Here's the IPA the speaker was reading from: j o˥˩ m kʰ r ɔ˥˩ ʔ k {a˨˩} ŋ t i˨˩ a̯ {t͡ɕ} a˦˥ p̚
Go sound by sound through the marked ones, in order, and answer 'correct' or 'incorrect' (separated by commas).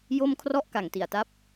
correct, incorrect